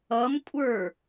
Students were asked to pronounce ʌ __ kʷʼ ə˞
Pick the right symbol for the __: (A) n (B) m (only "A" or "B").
B